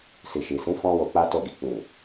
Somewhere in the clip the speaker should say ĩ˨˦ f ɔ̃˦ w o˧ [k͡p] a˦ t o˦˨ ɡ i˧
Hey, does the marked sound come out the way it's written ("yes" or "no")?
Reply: yes